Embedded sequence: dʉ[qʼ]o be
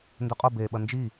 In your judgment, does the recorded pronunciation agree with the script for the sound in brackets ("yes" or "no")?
yes